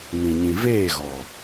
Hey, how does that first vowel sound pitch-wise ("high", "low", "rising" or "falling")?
low